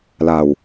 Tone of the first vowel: low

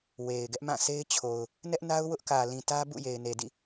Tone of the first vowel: low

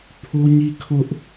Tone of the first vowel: high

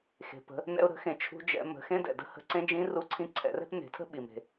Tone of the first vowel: low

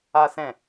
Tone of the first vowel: high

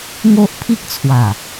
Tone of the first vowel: high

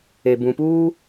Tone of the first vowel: low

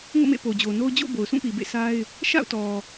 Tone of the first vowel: falling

